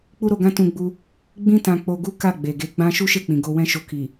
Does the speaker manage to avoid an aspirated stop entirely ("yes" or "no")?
yes